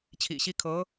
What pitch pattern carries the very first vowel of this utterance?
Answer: low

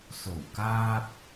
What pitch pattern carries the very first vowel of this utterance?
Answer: low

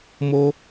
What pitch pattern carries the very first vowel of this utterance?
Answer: high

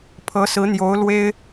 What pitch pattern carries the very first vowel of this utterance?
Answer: rising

